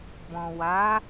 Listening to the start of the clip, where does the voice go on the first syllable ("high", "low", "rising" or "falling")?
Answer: low